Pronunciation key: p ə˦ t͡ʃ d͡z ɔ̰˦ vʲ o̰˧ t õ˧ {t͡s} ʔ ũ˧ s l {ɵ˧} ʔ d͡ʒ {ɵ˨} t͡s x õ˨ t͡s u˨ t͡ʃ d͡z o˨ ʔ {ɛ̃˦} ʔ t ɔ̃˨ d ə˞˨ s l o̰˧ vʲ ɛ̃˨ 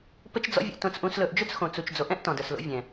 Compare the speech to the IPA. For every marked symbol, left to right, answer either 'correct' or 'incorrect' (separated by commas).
correct, correct, incorrect, correct